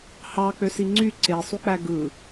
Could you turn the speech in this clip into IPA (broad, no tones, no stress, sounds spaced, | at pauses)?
h ɑ k͡p ø s i ŋ͡ǀ y ǀ e sˤ u k͡p æ ɡ ɯ